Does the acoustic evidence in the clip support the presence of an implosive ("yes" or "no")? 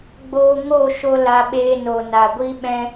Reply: yes